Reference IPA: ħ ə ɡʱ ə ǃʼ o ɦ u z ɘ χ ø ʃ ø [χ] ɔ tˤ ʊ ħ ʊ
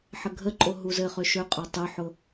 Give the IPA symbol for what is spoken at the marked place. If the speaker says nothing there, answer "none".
qʼ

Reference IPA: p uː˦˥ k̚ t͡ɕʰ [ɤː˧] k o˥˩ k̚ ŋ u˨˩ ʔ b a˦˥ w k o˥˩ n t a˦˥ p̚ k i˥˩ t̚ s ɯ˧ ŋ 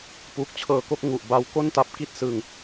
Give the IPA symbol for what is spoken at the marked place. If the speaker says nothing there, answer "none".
ɤː˧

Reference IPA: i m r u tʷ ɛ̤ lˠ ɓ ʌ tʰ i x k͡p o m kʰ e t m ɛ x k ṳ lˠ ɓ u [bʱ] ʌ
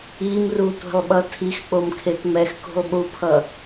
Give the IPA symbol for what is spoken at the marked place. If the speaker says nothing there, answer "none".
pʰ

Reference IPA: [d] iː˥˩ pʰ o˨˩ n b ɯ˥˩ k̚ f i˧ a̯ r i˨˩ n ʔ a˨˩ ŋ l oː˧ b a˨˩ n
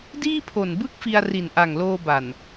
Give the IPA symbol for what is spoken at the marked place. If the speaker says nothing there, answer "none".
d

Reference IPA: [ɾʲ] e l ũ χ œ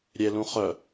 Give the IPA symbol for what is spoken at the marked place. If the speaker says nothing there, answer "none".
ɾʲ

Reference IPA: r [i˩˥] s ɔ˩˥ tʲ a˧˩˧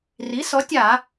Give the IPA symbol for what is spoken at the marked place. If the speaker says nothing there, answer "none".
i˩˥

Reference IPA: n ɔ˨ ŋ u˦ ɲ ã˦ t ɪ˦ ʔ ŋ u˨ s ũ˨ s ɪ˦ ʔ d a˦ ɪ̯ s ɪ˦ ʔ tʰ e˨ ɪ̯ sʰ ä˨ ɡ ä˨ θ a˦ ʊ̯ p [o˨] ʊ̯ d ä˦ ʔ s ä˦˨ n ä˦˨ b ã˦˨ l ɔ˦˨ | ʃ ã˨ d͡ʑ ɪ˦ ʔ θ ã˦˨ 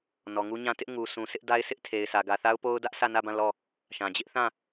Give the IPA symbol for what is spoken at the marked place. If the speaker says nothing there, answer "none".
o˦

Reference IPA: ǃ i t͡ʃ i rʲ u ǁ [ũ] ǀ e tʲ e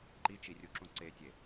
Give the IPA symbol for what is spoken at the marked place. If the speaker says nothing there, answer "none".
ũ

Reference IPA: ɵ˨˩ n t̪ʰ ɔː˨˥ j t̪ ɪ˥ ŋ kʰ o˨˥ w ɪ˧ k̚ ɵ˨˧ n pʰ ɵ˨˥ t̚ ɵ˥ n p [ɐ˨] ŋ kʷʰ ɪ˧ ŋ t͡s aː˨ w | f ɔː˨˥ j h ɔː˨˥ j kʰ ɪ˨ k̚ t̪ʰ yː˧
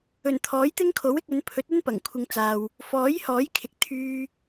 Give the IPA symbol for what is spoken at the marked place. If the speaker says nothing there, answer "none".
ɐ˨˩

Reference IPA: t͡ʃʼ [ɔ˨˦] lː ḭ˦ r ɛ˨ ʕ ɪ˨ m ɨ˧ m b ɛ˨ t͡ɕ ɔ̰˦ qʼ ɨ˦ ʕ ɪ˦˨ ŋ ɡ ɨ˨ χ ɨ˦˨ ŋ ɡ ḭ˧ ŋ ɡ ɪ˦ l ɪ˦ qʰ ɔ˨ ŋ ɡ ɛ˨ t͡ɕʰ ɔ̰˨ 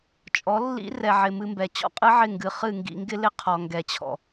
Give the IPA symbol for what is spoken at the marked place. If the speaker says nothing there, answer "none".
ɔ˨˦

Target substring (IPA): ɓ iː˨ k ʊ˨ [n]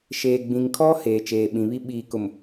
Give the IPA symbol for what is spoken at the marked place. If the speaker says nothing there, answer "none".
m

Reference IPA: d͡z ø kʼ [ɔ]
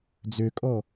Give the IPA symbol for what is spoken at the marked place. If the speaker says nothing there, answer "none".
ɔ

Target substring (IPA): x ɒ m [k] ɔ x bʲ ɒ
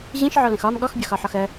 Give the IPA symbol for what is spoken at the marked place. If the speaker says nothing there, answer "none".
ɠ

